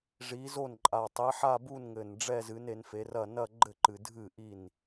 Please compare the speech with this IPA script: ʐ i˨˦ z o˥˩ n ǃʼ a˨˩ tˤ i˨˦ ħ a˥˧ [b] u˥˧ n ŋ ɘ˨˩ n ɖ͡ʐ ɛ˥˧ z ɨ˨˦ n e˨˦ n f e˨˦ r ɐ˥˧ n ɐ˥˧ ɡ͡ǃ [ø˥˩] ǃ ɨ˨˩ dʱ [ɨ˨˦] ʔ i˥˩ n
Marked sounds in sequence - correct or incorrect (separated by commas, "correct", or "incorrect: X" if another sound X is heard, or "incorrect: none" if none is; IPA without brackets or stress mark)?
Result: correct, incorrect: ɘ˥˩, incorrect: ɨ˥˩